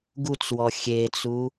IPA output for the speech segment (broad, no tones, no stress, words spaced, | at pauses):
ɡut͡swɔ xʲet͡su